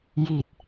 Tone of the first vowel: low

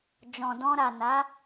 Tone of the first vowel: low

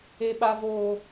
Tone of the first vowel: high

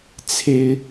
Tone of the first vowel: high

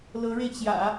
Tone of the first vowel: rising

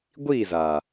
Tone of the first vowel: falling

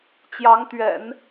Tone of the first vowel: rising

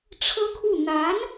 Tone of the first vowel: high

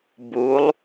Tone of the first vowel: rising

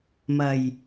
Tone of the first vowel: low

